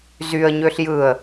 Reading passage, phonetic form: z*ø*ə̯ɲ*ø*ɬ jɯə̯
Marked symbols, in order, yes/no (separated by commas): no, yes